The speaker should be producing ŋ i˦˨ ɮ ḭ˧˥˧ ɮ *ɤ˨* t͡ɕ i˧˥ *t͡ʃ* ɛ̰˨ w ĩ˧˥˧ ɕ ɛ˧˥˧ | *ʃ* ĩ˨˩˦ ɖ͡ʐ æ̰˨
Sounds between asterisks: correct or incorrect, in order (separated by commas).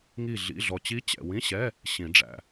incorrect, incorrect, incorrect